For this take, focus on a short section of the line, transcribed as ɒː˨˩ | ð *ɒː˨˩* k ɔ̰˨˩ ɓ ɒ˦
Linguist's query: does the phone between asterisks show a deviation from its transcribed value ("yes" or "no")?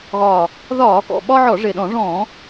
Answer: yes